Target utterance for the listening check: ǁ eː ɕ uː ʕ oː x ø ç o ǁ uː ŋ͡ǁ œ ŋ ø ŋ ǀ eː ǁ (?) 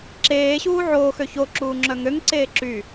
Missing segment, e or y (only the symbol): y